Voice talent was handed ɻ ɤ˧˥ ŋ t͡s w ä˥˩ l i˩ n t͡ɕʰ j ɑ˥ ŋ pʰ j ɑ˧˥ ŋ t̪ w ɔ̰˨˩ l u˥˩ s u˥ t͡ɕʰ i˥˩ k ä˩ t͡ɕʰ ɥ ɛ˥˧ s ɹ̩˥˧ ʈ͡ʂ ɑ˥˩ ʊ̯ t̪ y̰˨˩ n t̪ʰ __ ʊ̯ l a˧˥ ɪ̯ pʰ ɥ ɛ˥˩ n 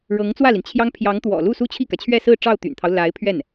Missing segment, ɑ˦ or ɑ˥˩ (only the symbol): ɑ˦